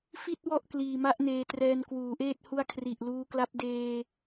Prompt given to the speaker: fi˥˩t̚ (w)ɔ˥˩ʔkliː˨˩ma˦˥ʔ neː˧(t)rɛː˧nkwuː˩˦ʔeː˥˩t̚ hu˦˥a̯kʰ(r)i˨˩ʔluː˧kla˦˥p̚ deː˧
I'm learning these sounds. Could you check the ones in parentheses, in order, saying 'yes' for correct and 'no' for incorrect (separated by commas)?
yes, yes, yes